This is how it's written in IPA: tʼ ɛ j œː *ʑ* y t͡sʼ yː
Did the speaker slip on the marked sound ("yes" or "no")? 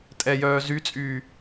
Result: yes